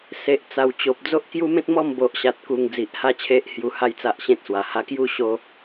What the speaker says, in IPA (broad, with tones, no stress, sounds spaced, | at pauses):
s e˨ ʔ t͡s a˨˩ w t͡ɕ o˨ p̚ d͡z o˦ ʔ k j u˦ m ẽ˦ t̚ m ɔ˥˧ m b o˨ ʔ ɕ a˨ t̚ k u˨˩ ŋ d͡z i˨ ʔ h a˥˧ t͡ɕʰ e˦ ʔ h j u˧ h a˦ j t͡s a˦ ʔ ɕ ẽ˦ t̚ s w a˨˩ h a˧ k j u˥˧ ɕ o˦